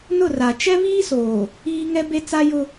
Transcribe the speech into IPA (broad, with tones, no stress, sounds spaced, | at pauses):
n ʊ˦˨ r a˨ t͡ʃ ɛ˦ β iː˦ s oː˨ | iː˦ ŋ ɛ˦ b e˦ t͡s a˦ j ʊ˦